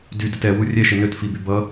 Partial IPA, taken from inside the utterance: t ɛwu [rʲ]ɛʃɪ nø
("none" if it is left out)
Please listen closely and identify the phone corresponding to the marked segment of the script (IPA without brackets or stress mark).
rʲ